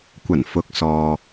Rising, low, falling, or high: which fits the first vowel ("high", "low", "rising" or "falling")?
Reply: low